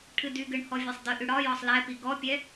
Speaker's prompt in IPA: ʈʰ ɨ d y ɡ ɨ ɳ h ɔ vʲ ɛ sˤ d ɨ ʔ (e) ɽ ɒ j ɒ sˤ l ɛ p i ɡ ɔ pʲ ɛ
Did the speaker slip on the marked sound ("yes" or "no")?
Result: yes